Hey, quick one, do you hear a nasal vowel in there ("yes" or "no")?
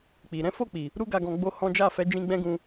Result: yes